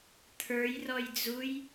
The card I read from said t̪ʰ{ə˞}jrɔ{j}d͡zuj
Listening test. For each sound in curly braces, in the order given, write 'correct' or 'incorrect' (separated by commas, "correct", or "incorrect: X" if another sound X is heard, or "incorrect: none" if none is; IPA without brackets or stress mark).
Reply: correct, correct